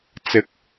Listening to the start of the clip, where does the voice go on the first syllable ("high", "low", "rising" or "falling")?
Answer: rising